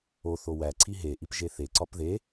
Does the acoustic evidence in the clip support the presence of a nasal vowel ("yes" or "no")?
no